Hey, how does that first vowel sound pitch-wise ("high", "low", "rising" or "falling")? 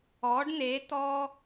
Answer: rising